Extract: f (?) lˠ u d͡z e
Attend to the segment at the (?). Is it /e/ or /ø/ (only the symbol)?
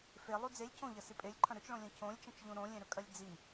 e